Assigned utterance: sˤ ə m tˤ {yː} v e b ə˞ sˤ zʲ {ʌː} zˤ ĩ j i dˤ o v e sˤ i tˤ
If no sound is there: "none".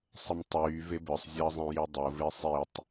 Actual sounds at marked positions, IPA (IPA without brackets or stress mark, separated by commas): yː, ʌː